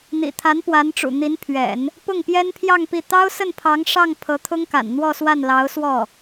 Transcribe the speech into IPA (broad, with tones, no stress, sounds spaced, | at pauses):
n̪ ḭ˨˩ t̪ʰ a˧˥ n p w a˧˥ n ʈ͡ʂ ṵ˨˩ n̪ i˧˥ n pʰ ɥ ɛ̰˨˩˦ n | p ʊ˥˩ ŋ p j ɛ˥ n pʰ j ɑ˥˧ ŋ p i˥˩ t̪ ɑ˥ ʊ̯ s ə˥˩ n pʰ ɑ˧˥ ŋ ʂ ɑ˥˩ ŋ pʰ ɤ˧˥ t̪ʰ ʊ˥ ŋ k a̰˨˩ n n̪ w ɔ˥˧ s w a˥˩ n l ɑ˧˥ ʊ̯ s w ɔ˥˩